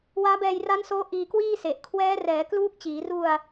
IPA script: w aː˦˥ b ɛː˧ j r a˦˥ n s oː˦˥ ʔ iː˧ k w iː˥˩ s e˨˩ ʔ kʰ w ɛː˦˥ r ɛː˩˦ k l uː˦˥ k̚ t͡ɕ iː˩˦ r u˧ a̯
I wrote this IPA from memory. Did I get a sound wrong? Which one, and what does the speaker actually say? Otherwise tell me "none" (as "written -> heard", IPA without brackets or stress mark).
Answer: none